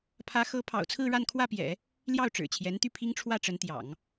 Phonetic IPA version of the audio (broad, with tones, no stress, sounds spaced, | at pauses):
pʰ ä˧˥ x ɤ˧˥ pʰ ɑ̰˨˩ ʊ̯ t͡sʰ ɹ̩˥˧ ɻ a˥˧ n kʰ w ä˥˩ p j ɛ̰˨˩˦ | l j ɑ˥˩ ʊ̯ ʈ͡ʂ ɻ̩˨˩ t͡ɕʰ j ɛ˧˥ n t̪ y˥˩ pʰ i˥ ŋ ʈ͡ʂʰ w ä˥˩ ʈ͡ʂ ə˧˥ n t̪ j ɑ̰˨˩˦ ŋ